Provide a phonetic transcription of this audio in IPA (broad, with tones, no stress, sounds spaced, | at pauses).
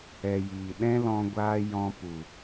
ɛ˨ j iː˨ ɗ ɛ̃˦ l ɔ̃˧ ɡʷ aː˦ j ɔ̃˧ p u˨